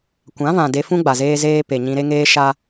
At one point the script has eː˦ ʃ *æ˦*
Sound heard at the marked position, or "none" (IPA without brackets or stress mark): a˦